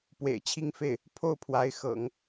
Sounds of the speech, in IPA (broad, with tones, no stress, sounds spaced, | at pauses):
p w ḛ˨˩ ɪ̯ t͡ɕʰ i˥˧ ŋ f e˥˩ ɪ̯ | pʰ o˥˩ ʊ̯ pʰ w a˧˥ ɪ̯ x ɤ̰˨˩˦ ŋ